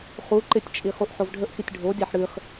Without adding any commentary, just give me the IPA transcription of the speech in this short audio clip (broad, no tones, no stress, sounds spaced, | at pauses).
χ u ǃ ɪ tʲ t͡ʃʼ i χ u ʔ ħ o v ɖʱ ə ʔ x i tʲ ɖʱ o dʲ a ħ ɽ ɨ χ